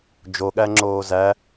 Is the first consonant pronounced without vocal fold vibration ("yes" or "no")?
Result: no